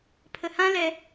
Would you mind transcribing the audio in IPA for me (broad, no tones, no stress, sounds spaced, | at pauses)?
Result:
pʰ ə h ã l ɛ